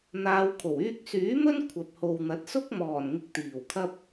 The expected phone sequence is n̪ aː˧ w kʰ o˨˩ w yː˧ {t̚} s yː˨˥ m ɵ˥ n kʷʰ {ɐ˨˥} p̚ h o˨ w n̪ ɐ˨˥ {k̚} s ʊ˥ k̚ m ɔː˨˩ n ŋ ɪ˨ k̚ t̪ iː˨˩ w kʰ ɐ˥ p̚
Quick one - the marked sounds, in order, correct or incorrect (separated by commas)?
incorrect, incorrect, incorrect